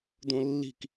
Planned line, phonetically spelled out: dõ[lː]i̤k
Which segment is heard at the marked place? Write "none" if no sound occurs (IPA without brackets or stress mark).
lː